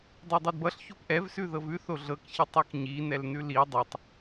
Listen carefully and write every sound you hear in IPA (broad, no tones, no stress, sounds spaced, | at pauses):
dˤ ɤ dˤ ɤ d b ʌ ɬ ç o p ʔ ɛ v s ʉ ð ɤ v ʉ θ o ɮ ɤ k ç i tˤ ɤ k ɲ i n ɛ l n ʉ l i dˤ ɤ tˤ